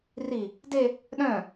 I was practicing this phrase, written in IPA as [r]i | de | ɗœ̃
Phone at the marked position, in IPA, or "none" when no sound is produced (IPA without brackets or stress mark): r